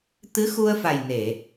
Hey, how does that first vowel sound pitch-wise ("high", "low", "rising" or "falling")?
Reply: rising